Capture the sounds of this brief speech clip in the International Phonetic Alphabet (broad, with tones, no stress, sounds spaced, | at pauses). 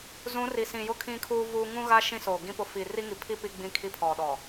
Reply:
z ũ˨˦ r i˨ s ĩ˨ j ʊ˦ kʰ ĩ˦ kʰ uː˦ v uː˦ ŋ ũ˦ ɣ a˦ ʃ ĩ˦ s oː˨ ɡ ĩ˦ p ʊ˦ f i˨ r i˦ ŋ i˨ pʰ i˦ p i˦ ɡ͡b ĩ˦ kʰ i˦ pʰ ɔ˨ ɗ ɔ˨